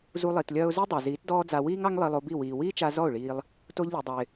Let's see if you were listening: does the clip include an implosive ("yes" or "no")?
no